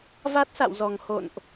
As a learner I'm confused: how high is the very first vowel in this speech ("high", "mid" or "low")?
low